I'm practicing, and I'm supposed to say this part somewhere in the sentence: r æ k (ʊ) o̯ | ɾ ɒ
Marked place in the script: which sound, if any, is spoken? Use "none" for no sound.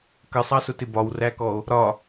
ɔ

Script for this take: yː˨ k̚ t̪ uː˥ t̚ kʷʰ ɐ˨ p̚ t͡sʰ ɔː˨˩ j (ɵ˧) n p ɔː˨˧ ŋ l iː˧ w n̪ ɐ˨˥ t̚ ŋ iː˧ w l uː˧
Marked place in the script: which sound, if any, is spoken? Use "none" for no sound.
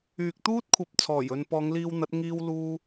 ɵ˨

